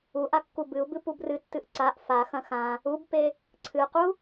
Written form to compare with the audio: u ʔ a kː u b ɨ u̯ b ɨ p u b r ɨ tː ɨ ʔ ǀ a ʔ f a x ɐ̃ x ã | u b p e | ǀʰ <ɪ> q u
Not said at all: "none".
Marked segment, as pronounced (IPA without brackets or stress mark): ɨ